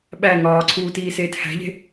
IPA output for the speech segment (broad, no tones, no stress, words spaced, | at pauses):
ɓæ ŋɒːǀʰuːtiːseːt hæ̤ʎe̤